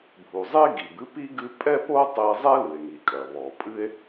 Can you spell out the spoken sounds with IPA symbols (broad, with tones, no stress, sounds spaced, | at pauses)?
bʱ u˩ zˤ e˥ ɡ i˩ b ɨ˥ p i˥ ɡ ɨ˥ pʼ ɛ˥ p o˥ tˤ e˥ zˤ ɛ˥ l ɨ˩ e̯ ŋ i˩ kʼ ɐ˩ β ɔ˩ pʼ ɨ˥ e̯